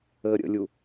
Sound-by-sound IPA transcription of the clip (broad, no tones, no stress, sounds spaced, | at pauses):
əː ɾʲ ə̰ lʲ u